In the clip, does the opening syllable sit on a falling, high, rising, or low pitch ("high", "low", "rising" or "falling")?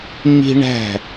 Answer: high